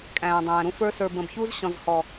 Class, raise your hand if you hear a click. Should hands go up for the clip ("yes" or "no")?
no